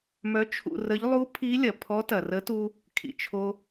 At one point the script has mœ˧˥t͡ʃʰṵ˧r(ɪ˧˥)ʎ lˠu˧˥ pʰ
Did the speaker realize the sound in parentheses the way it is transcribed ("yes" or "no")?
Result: no